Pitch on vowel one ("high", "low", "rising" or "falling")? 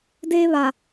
high